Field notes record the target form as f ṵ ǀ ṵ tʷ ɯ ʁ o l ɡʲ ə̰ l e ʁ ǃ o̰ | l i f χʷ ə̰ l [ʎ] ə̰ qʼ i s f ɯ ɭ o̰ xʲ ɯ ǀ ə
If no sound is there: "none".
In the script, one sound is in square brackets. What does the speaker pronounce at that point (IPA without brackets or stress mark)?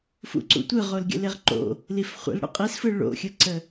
ɽ